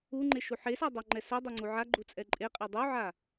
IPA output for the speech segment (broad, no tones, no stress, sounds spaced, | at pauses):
u ŋ͡ǃ e ʃ u ħ e s ɑ dˤ ɑ ŋ͡ǃ ɛ s ɛ dˤ ɛ ŋ͡ǀ u ʕ a ɡ͡ǃ u t͡sʼ ɛ ǃʼ e qʼ e dˤ u ʕ a